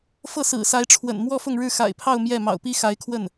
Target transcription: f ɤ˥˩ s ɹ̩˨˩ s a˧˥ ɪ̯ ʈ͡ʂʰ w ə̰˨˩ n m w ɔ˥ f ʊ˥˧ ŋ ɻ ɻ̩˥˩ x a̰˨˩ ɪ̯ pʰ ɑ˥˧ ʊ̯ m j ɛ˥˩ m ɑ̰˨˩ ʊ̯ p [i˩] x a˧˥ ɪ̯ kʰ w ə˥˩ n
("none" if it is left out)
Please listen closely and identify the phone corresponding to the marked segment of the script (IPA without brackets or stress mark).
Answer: i˥